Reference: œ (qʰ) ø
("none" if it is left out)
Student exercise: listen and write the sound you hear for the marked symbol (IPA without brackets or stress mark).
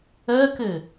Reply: k